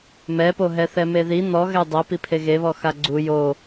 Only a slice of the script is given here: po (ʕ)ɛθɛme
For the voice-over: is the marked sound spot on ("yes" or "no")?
no